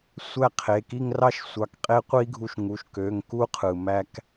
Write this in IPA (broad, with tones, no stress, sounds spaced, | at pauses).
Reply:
sʷ æ˥˧ qʰ e˩˧˩ k i˥˧ ŋ r ɑ˥˧ ʃ sʷ ɑ˨˥ k qʼ e˦˥ qʷ i˦˥ ɡʱ u˧ ʃ ŋ u˩˧˩ ʃ k ø˩˧˩ ŋ k u˦˥ qʰ ɯ˩ m æ˧ k